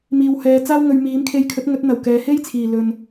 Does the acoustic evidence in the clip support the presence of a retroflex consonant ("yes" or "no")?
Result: no